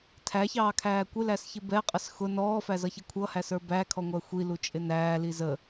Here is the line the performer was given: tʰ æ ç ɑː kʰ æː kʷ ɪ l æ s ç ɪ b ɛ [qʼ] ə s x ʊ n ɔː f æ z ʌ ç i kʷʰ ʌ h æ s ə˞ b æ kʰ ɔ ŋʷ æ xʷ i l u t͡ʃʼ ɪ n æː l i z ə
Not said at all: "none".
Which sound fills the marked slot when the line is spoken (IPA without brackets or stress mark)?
qʼ